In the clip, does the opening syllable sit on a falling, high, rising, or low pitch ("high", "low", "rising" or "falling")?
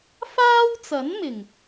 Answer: high